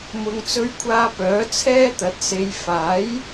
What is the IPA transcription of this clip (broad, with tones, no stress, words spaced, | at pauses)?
mʊ˨ŋt͡sɵ˧ɥkʷʰaː˧ pœː˨˥t͡sʰɛː˥t̪ɐ˨˥t̚se˨˧j faː˨˥j